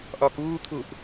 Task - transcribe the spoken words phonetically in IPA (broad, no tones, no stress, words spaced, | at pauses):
ʔɒːkuːt̪ʰuʔ